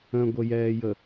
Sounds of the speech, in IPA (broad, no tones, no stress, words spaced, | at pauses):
ə̃ɡʷəjɛːjə